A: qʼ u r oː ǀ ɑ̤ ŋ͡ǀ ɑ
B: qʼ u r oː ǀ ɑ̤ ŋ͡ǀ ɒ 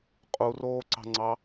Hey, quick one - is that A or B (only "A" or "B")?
A